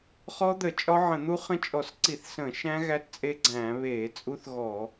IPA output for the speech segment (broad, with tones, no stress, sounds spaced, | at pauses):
χ ɔ˦˥ d̪ ə˧˩˧ t͡ʃʼ ɒ˦˥ ʕ ə̃˧˩˧ n̪ u˦˥ χ ə̃˦˥ t͡ʃʼ ɔ˧˩˧ s ǀ i˧˩˧ θ s ə̃ː˧˩˧ ʃ æ̃˦˥ ɣ æ˦˥ t t͡sʼ e˦˥ ɡ͡ǀ æ̃ː˧˩˧ β eː˧˩˧ t͡sʼ u˦˥ θ ɣ ɔ˧˩˧